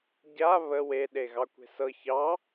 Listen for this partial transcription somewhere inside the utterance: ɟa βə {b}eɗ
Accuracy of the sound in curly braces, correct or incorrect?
incorrect